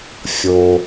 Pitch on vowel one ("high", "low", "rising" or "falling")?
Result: low